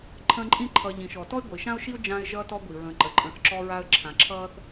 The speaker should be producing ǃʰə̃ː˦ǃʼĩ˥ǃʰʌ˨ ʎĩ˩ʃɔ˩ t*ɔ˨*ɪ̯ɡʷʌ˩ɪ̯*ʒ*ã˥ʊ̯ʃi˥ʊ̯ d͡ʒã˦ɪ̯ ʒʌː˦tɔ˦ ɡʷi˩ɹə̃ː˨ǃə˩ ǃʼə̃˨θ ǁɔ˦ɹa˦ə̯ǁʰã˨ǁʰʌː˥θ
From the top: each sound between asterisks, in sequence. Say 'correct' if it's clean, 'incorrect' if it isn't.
incorrect, incorrect

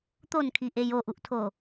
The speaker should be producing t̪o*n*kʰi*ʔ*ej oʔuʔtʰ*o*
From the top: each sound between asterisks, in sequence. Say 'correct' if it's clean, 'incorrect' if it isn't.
correct, correct, correct

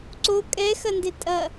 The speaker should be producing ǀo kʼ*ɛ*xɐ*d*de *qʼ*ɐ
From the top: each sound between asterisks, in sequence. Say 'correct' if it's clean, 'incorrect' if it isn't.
correct, incorrect, incorrect

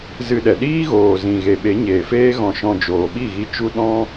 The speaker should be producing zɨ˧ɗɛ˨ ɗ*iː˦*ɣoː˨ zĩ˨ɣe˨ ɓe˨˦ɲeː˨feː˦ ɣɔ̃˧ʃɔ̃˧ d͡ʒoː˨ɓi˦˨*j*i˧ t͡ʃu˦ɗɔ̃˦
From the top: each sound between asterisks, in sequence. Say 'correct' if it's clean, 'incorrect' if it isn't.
correct, incorrect

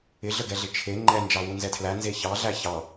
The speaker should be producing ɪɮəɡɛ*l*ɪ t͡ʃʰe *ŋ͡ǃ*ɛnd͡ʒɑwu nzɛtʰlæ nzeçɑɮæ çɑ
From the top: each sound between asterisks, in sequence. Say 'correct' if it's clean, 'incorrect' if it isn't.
incorrect, correct

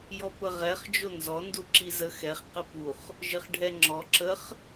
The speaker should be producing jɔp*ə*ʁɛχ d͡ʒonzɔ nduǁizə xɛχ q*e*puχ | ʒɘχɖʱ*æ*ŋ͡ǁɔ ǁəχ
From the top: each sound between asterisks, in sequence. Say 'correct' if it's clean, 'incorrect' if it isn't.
correct, incorrect, incorrect

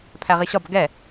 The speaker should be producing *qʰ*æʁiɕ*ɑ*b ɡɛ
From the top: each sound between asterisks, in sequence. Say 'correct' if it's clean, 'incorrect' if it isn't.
incorrect, incorrect

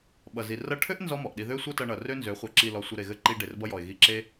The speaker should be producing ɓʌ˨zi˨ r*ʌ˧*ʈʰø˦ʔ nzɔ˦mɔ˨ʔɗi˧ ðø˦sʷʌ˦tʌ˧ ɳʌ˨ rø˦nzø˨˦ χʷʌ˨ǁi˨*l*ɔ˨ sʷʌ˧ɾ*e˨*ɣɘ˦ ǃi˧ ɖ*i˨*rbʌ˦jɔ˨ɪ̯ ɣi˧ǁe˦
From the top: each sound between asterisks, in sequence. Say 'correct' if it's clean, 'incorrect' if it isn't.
correct, correct, correct, incorrect

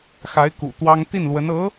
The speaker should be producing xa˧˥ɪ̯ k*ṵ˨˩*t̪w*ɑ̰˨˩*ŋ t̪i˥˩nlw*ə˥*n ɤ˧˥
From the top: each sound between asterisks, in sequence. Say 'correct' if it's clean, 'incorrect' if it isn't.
correct, incorrect, incorrect

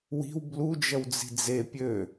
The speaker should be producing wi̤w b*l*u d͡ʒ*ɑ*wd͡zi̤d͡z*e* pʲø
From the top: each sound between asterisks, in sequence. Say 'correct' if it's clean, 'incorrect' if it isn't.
correct, incorrect, correct

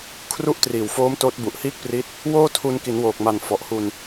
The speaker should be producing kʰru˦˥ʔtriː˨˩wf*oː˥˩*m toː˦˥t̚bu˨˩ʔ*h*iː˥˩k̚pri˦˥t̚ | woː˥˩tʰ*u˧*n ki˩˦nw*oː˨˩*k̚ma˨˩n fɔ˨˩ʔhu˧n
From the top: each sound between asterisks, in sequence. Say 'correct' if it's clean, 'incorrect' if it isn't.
incorrect, correct, correct, correct

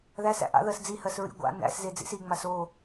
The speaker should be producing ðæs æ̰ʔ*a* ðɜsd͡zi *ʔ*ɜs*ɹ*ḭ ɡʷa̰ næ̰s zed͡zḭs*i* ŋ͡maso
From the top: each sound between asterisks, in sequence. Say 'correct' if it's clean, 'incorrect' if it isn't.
incorrect, incorrect, correct, correct

